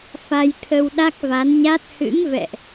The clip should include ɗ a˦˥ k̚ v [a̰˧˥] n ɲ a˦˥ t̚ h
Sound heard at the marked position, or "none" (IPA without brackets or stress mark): a˨˦